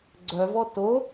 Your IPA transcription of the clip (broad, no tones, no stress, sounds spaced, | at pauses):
ɡ͡ǀ œ v ɔ t o